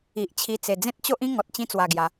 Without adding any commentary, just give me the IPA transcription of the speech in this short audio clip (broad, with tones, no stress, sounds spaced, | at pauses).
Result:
i˨ ʔ t͡ɕʰ i˧ t͡s e˨˩ d͡z ẽ˦ t̚ t͡ɕ o˦ ʔ ĩ˦ ŋ ɔ˨ t̚ t͡ɕ ĩ˧ t͡s w a˨˩ ɡ j a˨˦